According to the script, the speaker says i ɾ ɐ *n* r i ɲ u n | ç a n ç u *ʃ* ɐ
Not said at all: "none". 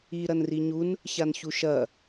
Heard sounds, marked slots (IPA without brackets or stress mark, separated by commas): n, ʃ